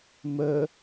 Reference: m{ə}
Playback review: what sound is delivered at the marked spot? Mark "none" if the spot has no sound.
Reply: ə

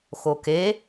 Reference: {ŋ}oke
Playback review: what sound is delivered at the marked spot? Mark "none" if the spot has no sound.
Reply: x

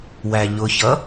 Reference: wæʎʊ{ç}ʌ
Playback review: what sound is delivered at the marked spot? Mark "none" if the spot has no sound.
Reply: ç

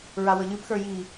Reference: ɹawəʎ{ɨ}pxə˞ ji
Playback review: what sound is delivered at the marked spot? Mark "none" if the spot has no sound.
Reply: ɨ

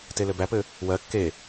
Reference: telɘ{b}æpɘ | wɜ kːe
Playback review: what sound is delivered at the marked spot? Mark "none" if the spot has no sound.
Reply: b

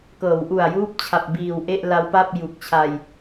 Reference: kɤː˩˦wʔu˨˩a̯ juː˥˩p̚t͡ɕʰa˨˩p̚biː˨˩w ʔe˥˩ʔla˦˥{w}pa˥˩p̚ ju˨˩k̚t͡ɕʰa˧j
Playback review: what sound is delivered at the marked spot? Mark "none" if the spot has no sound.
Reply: w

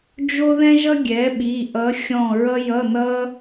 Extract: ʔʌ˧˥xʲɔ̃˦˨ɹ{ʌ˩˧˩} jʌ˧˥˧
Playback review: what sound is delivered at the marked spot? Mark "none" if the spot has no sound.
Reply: ʌ˥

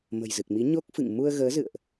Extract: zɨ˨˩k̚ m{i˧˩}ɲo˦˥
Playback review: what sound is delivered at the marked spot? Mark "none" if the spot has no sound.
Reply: i˨˦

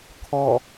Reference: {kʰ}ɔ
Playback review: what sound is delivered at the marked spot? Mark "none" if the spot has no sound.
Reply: kʰ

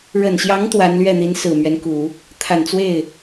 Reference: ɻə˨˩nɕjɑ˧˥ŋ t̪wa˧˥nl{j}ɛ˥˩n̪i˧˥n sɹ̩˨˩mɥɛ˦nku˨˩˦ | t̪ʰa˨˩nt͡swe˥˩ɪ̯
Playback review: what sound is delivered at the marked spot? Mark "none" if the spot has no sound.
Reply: ɥ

